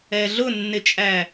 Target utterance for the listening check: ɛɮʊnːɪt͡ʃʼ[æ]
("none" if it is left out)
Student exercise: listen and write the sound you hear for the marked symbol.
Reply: æ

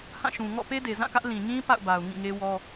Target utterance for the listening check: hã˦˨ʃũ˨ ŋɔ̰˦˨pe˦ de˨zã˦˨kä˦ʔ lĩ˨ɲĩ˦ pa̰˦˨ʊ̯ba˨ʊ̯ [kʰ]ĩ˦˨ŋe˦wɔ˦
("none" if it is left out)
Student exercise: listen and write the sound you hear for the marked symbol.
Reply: ŋ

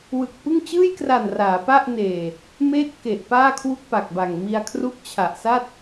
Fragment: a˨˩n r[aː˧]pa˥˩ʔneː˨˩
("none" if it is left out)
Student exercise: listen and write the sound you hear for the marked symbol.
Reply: aː˩˦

